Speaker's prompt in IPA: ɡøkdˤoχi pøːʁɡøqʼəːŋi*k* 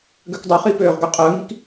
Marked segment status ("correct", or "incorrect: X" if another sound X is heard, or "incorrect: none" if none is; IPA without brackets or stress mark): correct